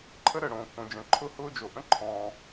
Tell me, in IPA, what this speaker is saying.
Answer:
ǃʰə˥ɾəː˩ ɽõː˩kːõ˩d͡ʒə̃ː˩ ǃʰʊ˥hʊː˥d͡ʒo˩ ʔə̃˥ǃʰɔ̃ː˩

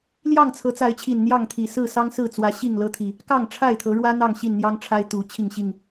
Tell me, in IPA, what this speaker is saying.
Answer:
ljɑ˥˨ŋt͡sʰɤ˨˦t͡sa˨˦ɪ̯t͡ɕʰi˨˩n n̪jɑ˥˨ŋt̪ʰi˨˩ sɹ̩˥˨sɑ˦ŋsɹ̩˥˨t͡swä˨˦ ɕi˥˨ŋlɤ˦t̪ʰi˨˩ | kɑ˥˨ŋʈ͡ʂʰa˥˨ɪ̯t̪ʰɤ˨˦ɻwä˦ n̪ɑ˥˨ŋɕi˥˨nn̪jɑ˦ŋʈ͡ʂʰa˦ɪ̯ t̪u˨˦ t͡ɕʰi˥˨ŋɕi˥˨ŋ

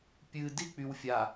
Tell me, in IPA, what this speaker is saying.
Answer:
pʲɨ dik͡pyw fʲa

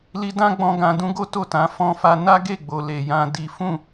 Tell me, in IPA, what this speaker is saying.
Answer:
li˧dã˦ɡ͡bɔ̃˧ ɡã˧dũ˦ ɡo˦ to˦˨tã˨˦ fɔ̃˦fa˦ na˦ɡe˦˨ɡ͡bo˨ le˨jã˧ di˦ fũ˦˨

